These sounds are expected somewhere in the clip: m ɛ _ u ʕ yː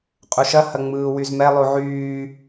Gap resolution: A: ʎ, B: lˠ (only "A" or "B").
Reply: B